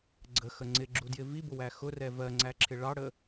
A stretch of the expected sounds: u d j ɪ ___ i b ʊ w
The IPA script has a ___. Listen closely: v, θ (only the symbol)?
v